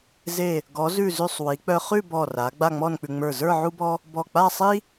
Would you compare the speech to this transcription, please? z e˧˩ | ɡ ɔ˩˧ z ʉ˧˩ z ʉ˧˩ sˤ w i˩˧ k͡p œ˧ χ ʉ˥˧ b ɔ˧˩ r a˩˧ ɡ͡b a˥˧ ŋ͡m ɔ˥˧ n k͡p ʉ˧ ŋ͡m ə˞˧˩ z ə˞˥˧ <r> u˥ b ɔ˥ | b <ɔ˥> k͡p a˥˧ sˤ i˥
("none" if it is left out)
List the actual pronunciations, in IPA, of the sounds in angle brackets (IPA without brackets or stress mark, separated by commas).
ʕ, ɔ˧˩